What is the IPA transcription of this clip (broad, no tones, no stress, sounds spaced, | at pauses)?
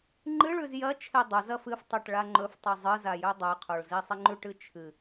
ŋ͡ǃ ɨ ɭ ʉ z j ɐ t͡ʃʰ e dˤ o z ɐ f ɨ f tˤ e ʈ ɭ a ŋ͡ǃ ɵ f tˤ i zˤ ɨ z a j ɵ dˤ o ɪ̯ qʰ o ɭ z i sˤ i ŋ͡ǃ ʉ ʈ ɨ t͡ʃʰ ɨ